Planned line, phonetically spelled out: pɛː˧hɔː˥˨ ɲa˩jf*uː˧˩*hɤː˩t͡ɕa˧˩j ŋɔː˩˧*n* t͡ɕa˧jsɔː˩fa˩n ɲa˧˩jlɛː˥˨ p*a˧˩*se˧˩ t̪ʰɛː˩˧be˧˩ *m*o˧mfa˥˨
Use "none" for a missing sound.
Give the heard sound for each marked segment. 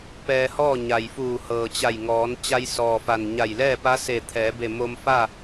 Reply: uː˧˩, n, a˧˥, m

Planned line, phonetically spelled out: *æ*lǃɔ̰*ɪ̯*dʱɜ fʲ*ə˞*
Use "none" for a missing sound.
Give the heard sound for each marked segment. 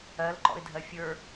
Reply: ɜ, ɪ̯, ə˞

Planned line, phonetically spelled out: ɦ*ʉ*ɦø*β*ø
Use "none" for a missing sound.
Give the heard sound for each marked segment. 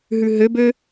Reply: ʉ, b

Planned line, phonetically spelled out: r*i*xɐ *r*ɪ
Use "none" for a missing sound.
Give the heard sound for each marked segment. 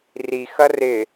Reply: i, r

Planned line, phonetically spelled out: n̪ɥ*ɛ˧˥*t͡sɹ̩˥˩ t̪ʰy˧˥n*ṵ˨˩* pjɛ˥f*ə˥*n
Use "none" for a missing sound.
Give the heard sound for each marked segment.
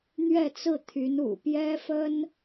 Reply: ɛ˥˧, ṵ˨˩, ə˥

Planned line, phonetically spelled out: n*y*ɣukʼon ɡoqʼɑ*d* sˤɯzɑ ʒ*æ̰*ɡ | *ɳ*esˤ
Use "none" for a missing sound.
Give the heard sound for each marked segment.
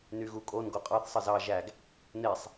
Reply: y, θ, æ, n

